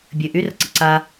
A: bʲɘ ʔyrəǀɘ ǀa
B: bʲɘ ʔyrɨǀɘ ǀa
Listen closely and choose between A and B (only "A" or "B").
A